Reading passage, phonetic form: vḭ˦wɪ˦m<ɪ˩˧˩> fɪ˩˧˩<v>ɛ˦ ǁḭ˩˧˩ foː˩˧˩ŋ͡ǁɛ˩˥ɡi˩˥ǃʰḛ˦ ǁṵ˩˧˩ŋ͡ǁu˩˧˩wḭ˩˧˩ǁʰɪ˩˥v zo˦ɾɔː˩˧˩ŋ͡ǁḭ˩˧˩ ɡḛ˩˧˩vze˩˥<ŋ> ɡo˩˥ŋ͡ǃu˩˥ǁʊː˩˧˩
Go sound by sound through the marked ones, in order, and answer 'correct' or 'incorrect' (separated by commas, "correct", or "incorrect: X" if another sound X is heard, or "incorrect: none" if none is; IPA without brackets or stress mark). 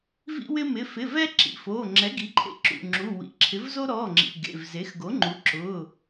correct, correct, incorrect: x